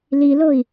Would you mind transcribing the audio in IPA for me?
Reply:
l i l o i̯

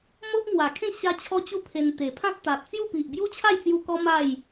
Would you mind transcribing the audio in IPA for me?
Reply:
m o˦ ʔ ŋ w a˨˩ kʰ ẽ˥˧ ɕ a˦ t͡ɕʰ ɔ˦ t͡ɕ u˦ pʰ e˧ n t̪ e˨˩ pʰ ã˦ t̚ t̪ a˨ t̚ t͡s j u˥˧ p i˨ ʔ b j u˦ t͡ɕʰ a˥˧ j t͡s j u˧ k ɔ˦ m a˥˧ j

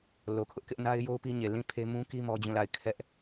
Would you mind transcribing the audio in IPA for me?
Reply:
l o˨ kʰ ʊ˦ ʔ k ɪ˦ ʔ n a˦ ɪ̯ j o˦ ʊ̯ p i˦ ɲ e˨ l ĩ˦˨ pʰ e˦ m ũ˦ k i˦ m ɔ˦ d͡ʑ ũ˦˨ l a˦˨ ɪ̯ kʰ ɛ˦ ʔ

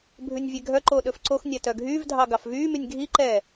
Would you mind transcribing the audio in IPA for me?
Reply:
bʱ ʉ nʲ vʲ e ɡʱ œ ǃ oː ɗ ɵ f ǀ o x nʲ æ t œ ɡʱ yː v dʱ ɑ ɡ ɑ f v yː m y nʲ ɡʱ i ǃ ɛː

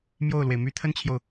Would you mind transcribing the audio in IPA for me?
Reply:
m j o˥˩ ʊ̯ l w e˩ ɪ̯ m y˧˥ t̪ʰ ə˥ n t͡ɕʰ j o˨ ʊ̯

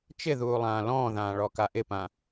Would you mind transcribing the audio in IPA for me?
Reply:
t͡ʃ ɪ ð uː lˠ ãː l ɔ̃ː ð ãː ɭ ɔ k a ʔ ɪ p ã

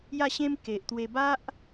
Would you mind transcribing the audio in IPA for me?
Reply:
j a˥˧ ɕ ẽ˦ m k e˨ ʔ t̪ w e˧ b a˦ ʔ

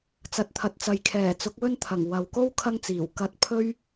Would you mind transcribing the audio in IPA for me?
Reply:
t͡s ɐ˨ t̚ t̪ʰ ɐ˨ t̚ t͡s ɐ˨ j kʰ ɛː˨˩ t͡s ʊ˨˥ k̚ w ɵ˥ n t̪ʰ ɐ˨˩ ŋ w ɐ˨ w k o˥ w kʰ ɐ˥ ŋ t͡s iː˨˩ w k ɐ˧ t̚ pʰ ɵ˥ ɥ

